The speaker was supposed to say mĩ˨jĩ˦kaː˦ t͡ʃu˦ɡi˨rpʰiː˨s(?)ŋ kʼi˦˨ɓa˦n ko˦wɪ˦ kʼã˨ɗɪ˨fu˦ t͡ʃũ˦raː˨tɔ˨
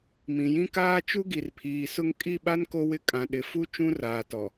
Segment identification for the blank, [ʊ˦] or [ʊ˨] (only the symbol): ʊ˦